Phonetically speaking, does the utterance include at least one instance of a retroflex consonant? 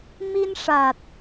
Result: yes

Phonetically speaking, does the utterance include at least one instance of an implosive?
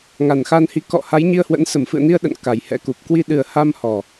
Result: yes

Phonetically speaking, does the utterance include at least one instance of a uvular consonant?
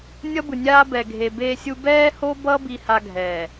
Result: no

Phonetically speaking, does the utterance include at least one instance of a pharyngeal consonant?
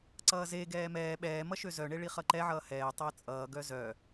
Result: yes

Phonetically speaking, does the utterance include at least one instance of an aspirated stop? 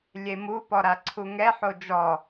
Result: yes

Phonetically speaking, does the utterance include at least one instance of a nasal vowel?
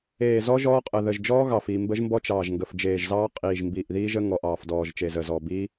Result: no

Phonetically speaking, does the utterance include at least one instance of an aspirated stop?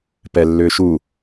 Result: no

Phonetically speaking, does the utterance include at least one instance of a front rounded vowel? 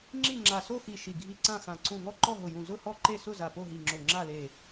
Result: no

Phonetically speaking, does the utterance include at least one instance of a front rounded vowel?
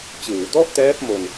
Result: no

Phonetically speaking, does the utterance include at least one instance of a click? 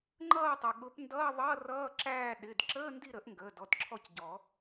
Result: yes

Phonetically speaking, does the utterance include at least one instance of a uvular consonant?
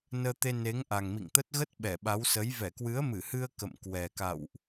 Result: no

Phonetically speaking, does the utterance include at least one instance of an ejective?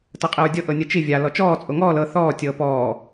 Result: yes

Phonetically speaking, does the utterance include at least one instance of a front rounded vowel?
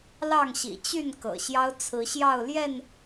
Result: yes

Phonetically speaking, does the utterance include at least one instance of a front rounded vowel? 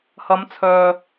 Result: yes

